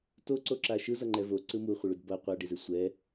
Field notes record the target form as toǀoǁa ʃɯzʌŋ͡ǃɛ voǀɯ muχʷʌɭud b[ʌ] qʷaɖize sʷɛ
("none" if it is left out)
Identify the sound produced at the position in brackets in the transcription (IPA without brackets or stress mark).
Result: ʌ